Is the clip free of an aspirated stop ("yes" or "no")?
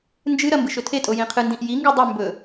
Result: no